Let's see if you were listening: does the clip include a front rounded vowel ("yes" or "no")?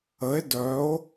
yes